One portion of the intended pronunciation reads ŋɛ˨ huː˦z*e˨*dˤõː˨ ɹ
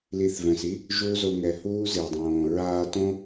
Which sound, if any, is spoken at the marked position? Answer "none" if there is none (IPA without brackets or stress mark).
e˨